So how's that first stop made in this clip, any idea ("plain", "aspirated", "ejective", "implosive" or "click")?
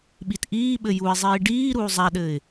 implosive